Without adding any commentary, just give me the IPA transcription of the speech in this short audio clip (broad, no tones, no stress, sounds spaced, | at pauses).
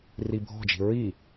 r i bʱ ɔ̤ d͡ʒ i̤ ɹ i